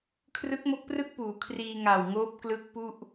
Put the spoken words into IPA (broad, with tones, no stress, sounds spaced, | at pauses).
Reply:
kʰ r ɯ˦˥ k̚ m o˦˥ k̚ p r ɯ˥˩ k̚ p uː˩˦ kʰ r iː˧ ŋ a˨˩ w ŋ oː˦˥ p̚ k l ɯ˦˥ k̚ p u˥˩ ʔ